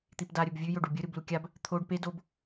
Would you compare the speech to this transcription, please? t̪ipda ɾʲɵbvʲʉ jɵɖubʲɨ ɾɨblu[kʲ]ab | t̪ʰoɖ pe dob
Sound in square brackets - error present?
no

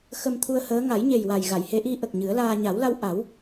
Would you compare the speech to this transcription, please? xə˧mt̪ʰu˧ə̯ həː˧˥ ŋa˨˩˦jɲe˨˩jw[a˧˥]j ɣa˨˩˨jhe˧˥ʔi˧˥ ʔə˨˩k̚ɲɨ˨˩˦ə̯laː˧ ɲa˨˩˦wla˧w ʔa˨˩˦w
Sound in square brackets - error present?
yes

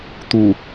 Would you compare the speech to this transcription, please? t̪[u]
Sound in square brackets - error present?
no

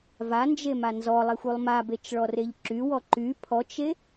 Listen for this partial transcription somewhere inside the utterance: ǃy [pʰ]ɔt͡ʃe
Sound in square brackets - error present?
no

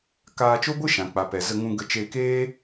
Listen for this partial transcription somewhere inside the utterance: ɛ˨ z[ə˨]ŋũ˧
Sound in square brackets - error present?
yes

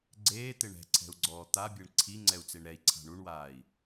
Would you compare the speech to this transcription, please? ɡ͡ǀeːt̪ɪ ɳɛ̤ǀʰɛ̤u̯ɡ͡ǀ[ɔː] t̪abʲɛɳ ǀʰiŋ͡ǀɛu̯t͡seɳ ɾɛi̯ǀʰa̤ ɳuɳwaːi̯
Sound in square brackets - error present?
no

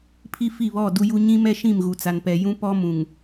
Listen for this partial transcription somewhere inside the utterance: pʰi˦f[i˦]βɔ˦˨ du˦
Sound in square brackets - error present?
yes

